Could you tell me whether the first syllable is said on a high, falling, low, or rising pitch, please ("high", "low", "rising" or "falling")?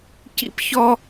high